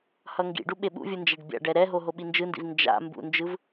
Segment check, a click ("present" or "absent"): absent